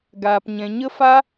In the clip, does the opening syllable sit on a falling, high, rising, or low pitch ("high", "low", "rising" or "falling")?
low